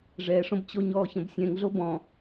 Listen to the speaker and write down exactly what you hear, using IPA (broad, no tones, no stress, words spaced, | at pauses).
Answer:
ʐɛʂõbt͡ɕoɲɔː çə̃bsʲɛ̃ŋɮo bɔ̃